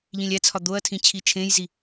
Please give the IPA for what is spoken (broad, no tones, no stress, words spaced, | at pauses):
ʎĩlʲæt͡sʰɒ d̪oɐ̯tʰĩ t͡ɕʰit͡ʃʰẽjzi